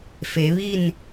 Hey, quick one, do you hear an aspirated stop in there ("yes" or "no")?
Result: no